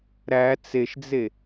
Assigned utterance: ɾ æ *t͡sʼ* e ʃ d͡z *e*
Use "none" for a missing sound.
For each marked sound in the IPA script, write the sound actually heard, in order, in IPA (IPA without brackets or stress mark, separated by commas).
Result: t͡s, e